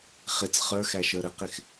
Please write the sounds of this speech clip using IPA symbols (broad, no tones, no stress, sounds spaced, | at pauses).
χ ɪ t͡s χ ə˞ x æ ʃ ə˞ ɾ ə q ɪ x